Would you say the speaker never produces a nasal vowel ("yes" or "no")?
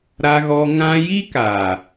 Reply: no